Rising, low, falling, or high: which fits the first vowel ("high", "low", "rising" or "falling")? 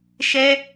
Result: high